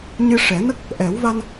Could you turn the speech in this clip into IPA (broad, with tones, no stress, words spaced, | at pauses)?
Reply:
ɲɨ˧ʂɛ˨˩˦nə˦˥k̚ | ʔɛ˨˩˦w va˧n